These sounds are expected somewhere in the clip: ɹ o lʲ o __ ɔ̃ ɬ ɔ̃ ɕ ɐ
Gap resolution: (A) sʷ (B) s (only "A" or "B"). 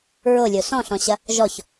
B